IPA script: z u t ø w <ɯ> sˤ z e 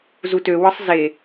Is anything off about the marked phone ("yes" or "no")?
no